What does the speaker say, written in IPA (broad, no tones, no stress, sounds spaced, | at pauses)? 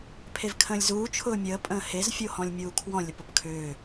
pʰ e v kʰ ə̃ː lʲ z uː t͡ʃʰ ʊː mʲ əː pʼ ə̃ː h e z fʲ o h ɔ̃ lʲ mʲ uː kʰ w ɔ̃ lʲ ə p ʊ p kʰ ʏː